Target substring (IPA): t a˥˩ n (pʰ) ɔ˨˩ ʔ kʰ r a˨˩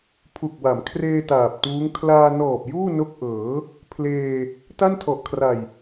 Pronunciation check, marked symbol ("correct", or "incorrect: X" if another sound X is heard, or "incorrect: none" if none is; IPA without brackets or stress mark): incorrect: tʰ